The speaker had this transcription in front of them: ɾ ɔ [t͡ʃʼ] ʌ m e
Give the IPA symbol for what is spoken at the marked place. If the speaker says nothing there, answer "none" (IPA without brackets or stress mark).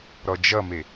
d͡ʒ